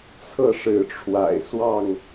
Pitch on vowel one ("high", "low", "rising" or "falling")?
falling